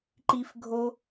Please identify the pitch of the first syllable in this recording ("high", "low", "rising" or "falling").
high